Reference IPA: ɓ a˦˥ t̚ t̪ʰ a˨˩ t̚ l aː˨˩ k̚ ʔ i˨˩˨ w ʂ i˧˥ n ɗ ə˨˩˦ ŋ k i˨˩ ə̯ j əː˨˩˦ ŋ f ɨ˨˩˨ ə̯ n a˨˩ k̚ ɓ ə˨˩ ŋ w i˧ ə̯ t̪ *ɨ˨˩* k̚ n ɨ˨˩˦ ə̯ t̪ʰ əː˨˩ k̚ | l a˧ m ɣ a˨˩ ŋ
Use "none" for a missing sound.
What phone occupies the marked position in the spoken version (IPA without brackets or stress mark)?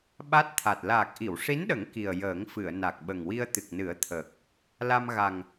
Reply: ɨ˨˩